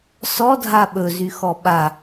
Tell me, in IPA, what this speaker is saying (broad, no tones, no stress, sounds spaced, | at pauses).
s ɔ dʱ a ɓ ɵ z y x ɔ ɓ a